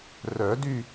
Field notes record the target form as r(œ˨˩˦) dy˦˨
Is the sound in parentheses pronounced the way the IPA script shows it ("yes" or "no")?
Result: yes